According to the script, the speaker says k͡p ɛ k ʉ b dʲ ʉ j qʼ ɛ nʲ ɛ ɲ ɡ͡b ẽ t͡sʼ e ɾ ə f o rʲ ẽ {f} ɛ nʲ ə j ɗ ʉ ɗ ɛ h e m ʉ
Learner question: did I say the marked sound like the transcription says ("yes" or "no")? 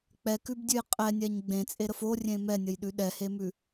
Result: no